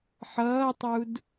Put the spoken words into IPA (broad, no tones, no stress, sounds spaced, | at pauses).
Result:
ħ ʌː tˤ u d